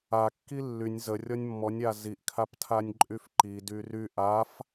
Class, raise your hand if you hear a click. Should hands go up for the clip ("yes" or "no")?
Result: yes